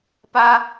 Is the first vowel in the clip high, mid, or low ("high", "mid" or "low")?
low